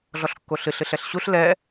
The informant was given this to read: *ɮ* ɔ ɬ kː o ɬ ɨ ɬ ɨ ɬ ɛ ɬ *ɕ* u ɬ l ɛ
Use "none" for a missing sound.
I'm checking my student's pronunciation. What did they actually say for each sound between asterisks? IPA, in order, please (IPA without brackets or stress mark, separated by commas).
ɮ, ɕ